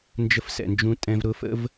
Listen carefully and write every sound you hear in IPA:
nd͡ʒə˦fsɛ̰˨nd͡ʒũ˦ tʼɛ̃˦v ɾʊ˦fə̰˦v

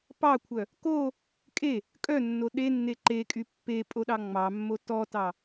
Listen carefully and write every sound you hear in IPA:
pɑkʷʰœ | ko | kʼe | kʼœnːo ɗenːe ǃekʼy pːepʼoɗɑ ŋ͡mɑmːo tɔtɑ

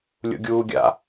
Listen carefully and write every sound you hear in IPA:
lʲṵɡʲuːɡʲa̰

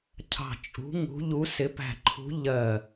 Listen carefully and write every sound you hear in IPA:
cʰɑ̤˧˩ t͡ʃʼṳ˨˦ ŋṳ˨˦ʎu˨˦sɪ˨˦pæ̤˧˩ ǃʰṳ˨˦ ʎɜ˧˩

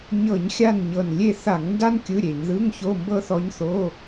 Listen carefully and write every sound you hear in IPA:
ɲɤ˧˩˧ɲ xʲa˦˨nɲɤ˨˩n lʲe˦˨θa˧˩˧ŋnda˥n kʲɯ˧˥˧ɾʲe˧˩˧ɲ ðɯ˧˥˧ŋço˧˥˧ mbɤ˥θɔ˧˥ɲθo˧˥˧

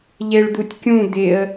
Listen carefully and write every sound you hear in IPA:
ʎeɭd̪utʲkʲũ d̪ɪə̯

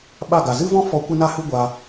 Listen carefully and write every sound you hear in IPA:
ɓa˦˨ ɡa˨zɨ˦vɔ̃˦fɔ˧ kʷɛ˦na˦hɨ˦ ɡʷaː˧

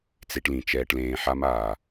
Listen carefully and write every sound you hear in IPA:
t͡se˧ʈlĩ˨ t͡ʃɛː˧ʈlẽː˧ħa˦maː˨

